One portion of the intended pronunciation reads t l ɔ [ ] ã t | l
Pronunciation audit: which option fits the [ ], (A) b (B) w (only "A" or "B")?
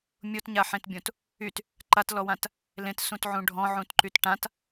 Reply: B